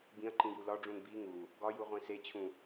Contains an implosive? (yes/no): no